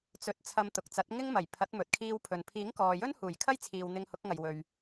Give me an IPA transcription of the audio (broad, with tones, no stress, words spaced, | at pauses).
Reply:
t͡sɵ˨˥t̚ t͡sʰɐ˧mt̪ʊ˨k̚t͡sɐ˨˥t̚ ŋɪ˥ŋmɐ˨˩j pʰɐ˨˥t̚ mɵ˨t̚kʰiː˧wpʰɵ˨n pʰiː˨˥ŋkɔː˨jɵ˥n huː˨˩jkʰɐ˥jt͡sʰiː˨w n̪ɪ˧ŋhʊ˨˥k̚ ŋɐ˨jwɵ˨ɥ